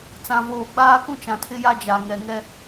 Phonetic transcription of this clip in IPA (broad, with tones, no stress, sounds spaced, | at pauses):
t͡s ã˨ v oː˨ ɡ͡b aː˦ k ũ˦ t͡ʃ ã˨ tʰ ɪ˦ j a˦ d͡ʒ a˨ ŋ ɛ˨ ŋ ɛ˦